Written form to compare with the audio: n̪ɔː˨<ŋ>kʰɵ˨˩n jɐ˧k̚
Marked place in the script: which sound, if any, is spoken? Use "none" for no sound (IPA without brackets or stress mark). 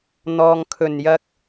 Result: ŋ